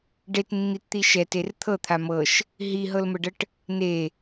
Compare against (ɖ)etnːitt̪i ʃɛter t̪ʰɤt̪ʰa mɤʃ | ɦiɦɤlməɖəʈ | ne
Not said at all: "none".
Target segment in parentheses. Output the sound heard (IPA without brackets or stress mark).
ɖ